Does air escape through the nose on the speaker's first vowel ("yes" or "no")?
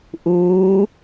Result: no